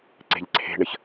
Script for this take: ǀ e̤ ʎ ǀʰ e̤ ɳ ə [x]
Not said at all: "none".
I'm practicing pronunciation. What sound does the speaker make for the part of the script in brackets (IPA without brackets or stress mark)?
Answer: ç